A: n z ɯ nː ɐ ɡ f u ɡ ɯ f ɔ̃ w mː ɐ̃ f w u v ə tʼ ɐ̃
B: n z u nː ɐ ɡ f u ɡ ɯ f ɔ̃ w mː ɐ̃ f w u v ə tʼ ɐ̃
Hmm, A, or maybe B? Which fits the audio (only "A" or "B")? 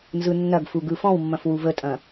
A